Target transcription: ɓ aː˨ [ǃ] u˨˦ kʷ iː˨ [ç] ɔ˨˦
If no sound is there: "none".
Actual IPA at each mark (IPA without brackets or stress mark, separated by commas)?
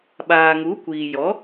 ŋ, j